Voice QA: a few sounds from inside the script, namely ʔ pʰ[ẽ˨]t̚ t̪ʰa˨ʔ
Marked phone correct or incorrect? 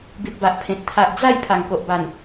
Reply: correct